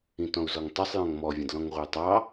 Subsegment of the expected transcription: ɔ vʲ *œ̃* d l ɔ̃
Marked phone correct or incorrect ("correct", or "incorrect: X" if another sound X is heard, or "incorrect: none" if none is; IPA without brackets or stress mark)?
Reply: incorrect: ə̃